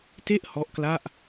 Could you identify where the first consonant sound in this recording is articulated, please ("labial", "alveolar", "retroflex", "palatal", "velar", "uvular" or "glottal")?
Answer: alveolar